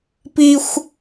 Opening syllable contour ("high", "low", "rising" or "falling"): high